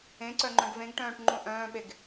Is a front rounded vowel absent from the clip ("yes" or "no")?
no